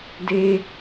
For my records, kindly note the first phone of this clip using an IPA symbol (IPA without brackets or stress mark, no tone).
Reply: d